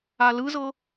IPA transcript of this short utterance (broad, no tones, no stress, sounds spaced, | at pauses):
a l ɯ z ɤ